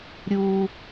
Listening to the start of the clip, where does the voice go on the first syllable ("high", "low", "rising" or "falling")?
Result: low